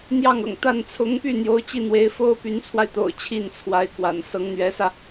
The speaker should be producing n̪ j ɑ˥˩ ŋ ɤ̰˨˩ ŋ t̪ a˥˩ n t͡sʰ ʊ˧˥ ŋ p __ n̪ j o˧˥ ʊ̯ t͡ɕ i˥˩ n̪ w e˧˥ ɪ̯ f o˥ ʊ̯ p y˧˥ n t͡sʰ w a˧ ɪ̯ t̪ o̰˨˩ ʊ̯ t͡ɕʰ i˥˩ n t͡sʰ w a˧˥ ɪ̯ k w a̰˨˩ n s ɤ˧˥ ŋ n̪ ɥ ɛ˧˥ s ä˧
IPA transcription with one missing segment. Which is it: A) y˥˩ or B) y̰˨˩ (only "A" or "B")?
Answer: A